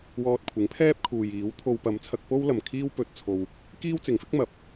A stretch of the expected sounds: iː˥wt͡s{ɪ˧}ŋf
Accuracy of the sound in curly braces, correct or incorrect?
incorrect